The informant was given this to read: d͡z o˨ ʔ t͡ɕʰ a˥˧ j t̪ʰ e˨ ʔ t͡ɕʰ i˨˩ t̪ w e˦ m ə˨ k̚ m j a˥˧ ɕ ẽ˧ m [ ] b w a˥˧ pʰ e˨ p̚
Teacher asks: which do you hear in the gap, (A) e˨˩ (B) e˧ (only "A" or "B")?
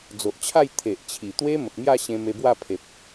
B